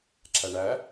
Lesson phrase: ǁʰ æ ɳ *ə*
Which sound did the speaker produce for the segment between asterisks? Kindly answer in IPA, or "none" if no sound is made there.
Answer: æ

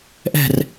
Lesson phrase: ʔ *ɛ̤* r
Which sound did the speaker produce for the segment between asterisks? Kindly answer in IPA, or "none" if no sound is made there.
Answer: ɛ̤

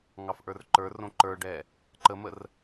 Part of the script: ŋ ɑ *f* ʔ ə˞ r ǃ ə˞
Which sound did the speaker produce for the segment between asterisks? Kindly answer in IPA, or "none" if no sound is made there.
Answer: f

